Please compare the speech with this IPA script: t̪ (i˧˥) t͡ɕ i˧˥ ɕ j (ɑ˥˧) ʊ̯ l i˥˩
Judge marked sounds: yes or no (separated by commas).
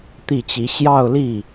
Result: no, yes